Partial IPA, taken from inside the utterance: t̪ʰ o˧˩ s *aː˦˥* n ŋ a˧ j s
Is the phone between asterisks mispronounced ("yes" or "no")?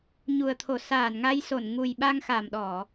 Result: yes